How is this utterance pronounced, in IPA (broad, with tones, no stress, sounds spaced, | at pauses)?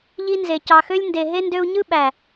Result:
ʎ i˧ n z e˨ c ɑ˨ x ø˧ lʲ n d e˨ ɦ e˧ n d ø˧ u̯ ɲ ɯ˦ ɓ æ˨